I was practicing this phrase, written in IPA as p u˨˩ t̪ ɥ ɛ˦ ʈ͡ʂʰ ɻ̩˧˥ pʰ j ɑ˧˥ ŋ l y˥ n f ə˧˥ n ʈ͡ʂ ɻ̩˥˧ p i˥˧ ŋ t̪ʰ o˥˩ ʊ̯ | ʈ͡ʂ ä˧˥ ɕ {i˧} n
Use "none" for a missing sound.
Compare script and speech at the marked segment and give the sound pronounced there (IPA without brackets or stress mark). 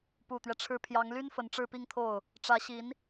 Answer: i˧˥